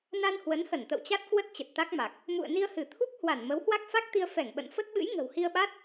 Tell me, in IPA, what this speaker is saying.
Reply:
na˧nhwə˨˦nhə˧˩n t̪ə̰˧˨wt͡ɕa˦˥t̚kwə˦˥t̚ t͡ɕə˨˩t̚t̪a˦˥k̚ma˨˩k̚ | mṵ˧˨ə̯ni˧ə̯hɨ˧˩t̪ʰu˦˥k̚ hwa˧˩n mə˨˦whwa˦˥k̚fa˦˥k̚t̪i˧ə̯ fɛ˧˩ŋɓə̰˧˨nfə˦˥t̚ɓɨ̰˧˥j ŋə̤˨˩whi˧ə̯ɓa˦˥t̚

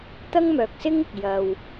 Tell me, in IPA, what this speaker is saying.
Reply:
t̪ɐ˥ŋmœː˨k̚sɪ˥ŋɪ˨k̚ jɐ˧w

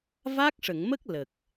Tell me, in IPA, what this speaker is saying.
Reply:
va˦˥k̚ʂə˨˩˨ŋmə˦˥k̚ lə˨˩k̚

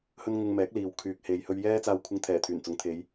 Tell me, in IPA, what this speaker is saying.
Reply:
hɵ˥n ŋʊ˧ŋmɛː˨˥k̚liː˨w kʰyː˨k̚he˨j hɵ˧ɥjɛː˥t͡saː˧wkʷʰɪ˧ŋ t̪ʰɛː˨˩ t̪ʰyː˨˩nt͡sʊ˨˥ŋt̪ʰe˨˧j

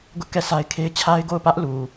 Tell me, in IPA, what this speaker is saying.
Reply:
ɡʊ˦ʔkɛ˦˨sa˦ɪ̯ kʰe˦ɪ̯ t͡ɕʰa˦ɪ̯ɡo˦˨ʊ̯pä˦ʔlu˨

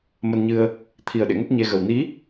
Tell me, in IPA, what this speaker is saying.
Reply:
mə˧nɲɨ˧ə̯ | t̪ʰi˨˩ə̯ ɗḛ˧˨ŋə˦˥t̚ ɲe˧ɣə˨˩w ni˨˦

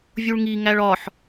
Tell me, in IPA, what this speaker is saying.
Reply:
vʲuɭŋi ŋæɭɒħ

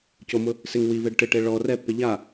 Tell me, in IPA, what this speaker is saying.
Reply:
comʊ | sɪŋ wiveɖ ʈɪʈe ɭɔ rɛpːe ʎa

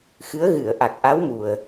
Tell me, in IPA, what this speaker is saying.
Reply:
xɨ˧˥ə̯ɣɨ˨˩˨ə̯ ʔa˨˩k̚ʔa˧˥wmu˨˩ə̯

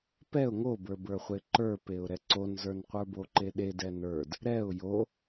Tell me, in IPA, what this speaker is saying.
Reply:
pɛʊ̯ ŋobə˞bə˞χʷe ǃə˞peʊ̯ ɾɛǀonzə˞n qʷə˞boǃeɗe dɛnə˞d | ɾɛʊ̯ jo

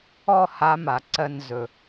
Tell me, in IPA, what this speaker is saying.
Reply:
ɔ˥˧ ha˧˥ma˨˩˦ ǀɜ˧nzɵ˨˩

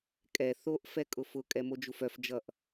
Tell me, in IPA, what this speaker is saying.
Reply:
kʼɛ θoʔ fɛkʼʊfʊ kʼɛmod͡ʒufœf d͡ʒʌʔ

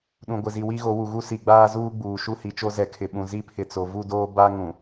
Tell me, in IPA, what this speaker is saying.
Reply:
ɗũ˨ɡʷɪ˨zi˨ wi˦ɣo˨˦wu˨ɣu˦ si˨ɡ͡baː˦zuː˦ ɡ͡buː˨ ʃu˦hi˨t͡ʃo˦ zɛ˨kʰɪ˨ɓũ˨ zi˦pʰɪ˨t͡so˨ vu˦˨doː˦ ba˦ŋũ˨

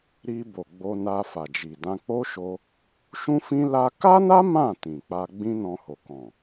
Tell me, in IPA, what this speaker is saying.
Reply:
ɾi˧bo˨ ɡ͡bo˧na˧ fa˨d͡ʒi˨dã˧k͡po˦ ʃo˧ | ʃũ˦fĩ˦ la˦ ka˦na˦ mã˦˨ tĩ˨k͡pa˧ ɡ͡bĩ˦nɔ̃˧ho˨ kɔ̃˨

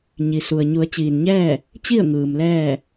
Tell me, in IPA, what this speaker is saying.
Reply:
ɲi˩su˩ə̯ ɲu˩˧ə̯ t͡ɕiː˩nɲɛː˥˨ | t͡ɕi˥˨ə̯ ŋɯː˩mlɛː˥˨

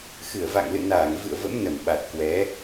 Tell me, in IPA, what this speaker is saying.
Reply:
xɨ˧˩ə̯va̰˧˨ŋlɨ̰˧˨ naː˧˩ŋ vɨ̰˧˨ə̯və̰˧˥m nə˧˩mɓa˨˩t̚kwɛ˨˦

